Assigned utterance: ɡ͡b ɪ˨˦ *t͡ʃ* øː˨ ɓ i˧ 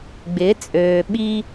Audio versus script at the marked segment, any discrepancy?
yes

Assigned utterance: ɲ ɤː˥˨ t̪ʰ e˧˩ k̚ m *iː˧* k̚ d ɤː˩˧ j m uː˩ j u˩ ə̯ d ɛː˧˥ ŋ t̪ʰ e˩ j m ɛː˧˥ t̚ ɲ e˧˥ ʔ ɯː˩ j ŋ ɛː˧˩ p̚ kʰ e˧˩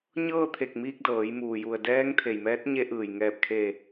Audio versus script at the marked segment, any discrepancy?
no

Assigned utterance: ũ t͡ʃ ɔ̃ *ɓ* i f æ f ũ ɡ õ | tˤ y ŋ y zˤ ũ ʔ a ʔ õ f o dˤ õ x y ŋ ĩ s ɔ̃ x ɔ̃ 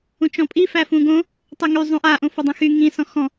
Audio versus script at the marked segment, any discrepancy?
yes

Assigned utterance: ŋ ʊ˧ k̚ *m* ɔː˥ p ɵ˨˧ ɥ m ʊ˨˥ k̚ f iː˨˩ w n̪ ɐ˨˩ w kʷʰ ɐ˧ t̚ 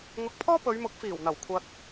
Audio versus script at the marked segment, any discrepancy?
yes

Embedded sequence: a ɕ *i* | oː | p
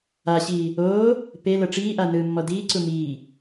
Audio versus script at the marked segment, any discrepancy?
yes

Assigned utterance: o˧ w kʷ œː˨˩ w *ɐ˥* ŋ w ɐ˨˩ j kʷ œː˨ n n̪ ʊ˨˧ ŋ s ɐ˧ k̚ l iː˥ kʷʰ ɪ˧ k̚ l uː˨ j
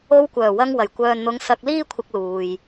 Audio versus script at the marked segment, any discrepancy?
yes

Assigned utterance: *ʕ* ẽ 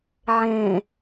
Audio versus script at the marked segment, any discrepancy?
no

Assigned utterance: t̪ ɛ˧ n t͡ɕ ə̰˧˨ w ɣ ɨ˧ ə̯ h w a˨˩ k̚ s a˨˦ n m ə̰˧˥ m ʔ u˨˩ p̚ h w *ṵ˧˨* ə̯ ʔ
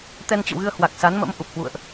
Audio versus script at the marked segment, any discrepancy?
no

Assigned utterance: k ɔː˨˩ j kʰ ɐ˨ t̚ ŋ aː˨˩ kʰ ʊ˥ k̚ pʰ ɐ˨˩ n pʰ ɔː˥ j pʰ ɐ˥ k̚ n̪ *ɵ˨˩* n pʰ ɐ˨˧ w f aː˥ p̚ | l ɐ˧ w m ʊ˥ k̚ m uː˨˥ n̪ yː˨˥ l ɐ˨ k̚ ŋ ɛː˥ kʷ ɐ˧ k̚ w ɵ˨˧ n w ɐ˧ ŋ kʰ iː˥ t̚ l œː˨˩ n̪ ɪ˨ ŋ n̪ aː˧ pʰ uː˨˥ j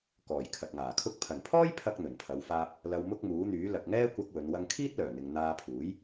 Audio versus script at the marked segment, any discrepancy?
no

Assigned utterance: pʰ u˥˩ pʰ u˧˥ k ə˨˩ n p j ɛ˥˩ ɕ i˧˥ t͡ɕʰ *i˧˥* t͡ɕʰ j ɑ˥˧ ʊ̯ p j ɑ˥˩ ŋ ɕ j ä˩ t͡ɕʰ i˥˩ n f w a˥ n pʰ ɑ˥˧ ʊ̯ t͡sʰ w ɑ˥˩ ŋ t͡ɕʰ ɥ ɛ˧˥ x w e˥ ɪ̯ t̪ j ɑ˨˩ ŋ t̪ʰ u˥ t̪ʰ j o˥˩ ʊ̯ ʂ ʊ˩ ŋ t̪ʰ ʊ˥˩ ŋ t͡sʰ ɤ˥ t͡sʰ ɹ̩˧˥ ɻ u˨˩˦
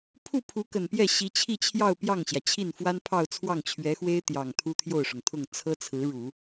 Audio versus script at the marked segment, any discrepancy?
yes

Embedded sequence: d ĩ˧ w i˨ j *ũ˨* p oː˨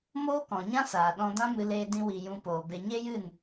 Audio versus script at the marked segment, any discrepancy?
yes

